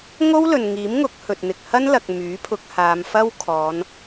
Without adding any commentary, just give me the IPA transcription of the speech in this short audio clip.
ŋ o˥ w l ɵ˨ n ŋ iː˨˥ m ŋ ʊ˨˥ k̚ h ɵ˨ t̚ n̪ ɪ˨ k̚ h ɐ˥ n l ɐ˨ k̚ m yː˨˥ pʰ ʊ˧ k̚ h aː˨˧ m f ɐ˥ w kʰ ɔː˨˧ n

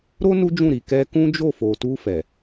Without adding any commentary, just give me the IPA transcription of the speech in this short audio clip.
ɾ o˦ n u˦ d͡ʒ ũ˦˨ ɾ i˨ k ɛ˧ k ũ˦ d͡ʒ o˦˨ f o˨ t u˧ f ɛ˨

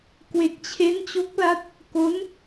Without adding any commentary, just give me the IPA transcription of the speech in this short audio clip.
k w e˨˩ k̚ t͡ɕʰ e˦˥ n t͡ɕ o˦˥ k̚ l a˦˥ t̚ | k o˦˥ n

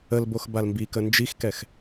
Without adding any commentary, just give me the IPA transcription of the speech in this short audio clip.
ə l b o x b a l m b i k ə n d͡ʒ i x k ɛ x

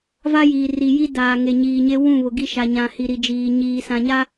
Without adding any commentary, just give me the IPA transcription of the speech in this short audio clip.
v a˦ j iː˨ r i˨ j i˦ d aː˨ ŋ e˨ ɲ iː˨ ɲ e˦ w ũ˦˨ β ʊ˨ ɡ i˦ ʃ a˨ ɲ ã˨ h i˨ ɾ i˨ d͡ʒ iː˨ ɲ iː˨ s ã˨ ɲ a˦

